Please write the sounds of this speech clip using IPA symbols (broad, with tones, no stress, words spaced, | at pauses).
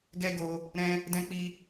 ɡɛ˦ ɡo˧ | ɾɛ̃˦ | dɛ̃˦k͡pi˦